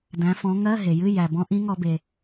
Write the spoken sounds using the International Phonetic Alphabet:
dæ̃˨˦fɔ̃˨˦ ŋɜ˧˥˧ɦe˩jɨ˧˥˧ jæ˩ bɔ̃˨˦ʔĩ˨˦ŋɔ˧˩˧be˩

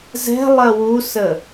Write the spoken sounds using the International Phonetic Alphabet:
zɛ̤lˠɜ wusə

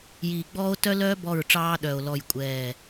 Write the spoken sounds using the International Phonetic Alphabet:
jiː˨ɡ͡bɔː˦o̯ tœ˦lœː˦ bɔ˦˨ɹʈ͡ʂɑː˦ɗœː˨o̯ lɔ˦˨jkʷʼɛː˦˨

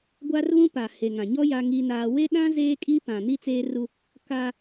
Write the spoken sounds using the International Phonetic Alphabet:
ɡʷa˦rβũ˦pa˨ he˨ŋã˨ɲɔ˦ ja˦ŋi˦naː˦ we˦ɗã˦ zeː˦kʼi˦ pã˨ni˦t͡seː˦ru˦ | kaː˦

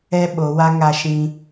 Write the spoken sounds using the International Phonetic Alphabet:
ɛ˦ɓo˨˦wa˦ ŋa˧ʃĩ˧

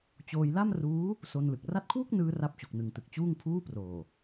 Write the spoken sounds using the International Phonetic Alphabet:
t͡ɕoː˧jla˥˩mruː˦˥ | so˧nlɯ˨˩k̚ ra˦˥t̚kʰwu˥˩k̚nɯː˧ ra˦˥p̚t͡ɕu˨˩k̚nɯ˨˩ŋtɯ˨˩k̚ t͡ɕuː˥˩ŋpʰuː˥˩proː˨˩

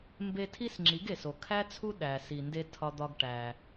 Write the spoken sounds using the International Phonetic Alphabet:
mbe˧ tʰi˥sŋ͡ǁi˩˥ɡ e˩so˩kʰæ˥t͡sʰu˥ ɗæ˩si˩nde˧ tʰɒ˧d̪ɒ˧ɡ ʈæ˩

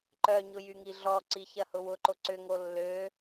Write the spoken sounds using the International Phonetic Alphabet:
ǃœɲʊ jyŋiɮɔǀi çɐhʊwʊǃo ǀʏŋo lːø

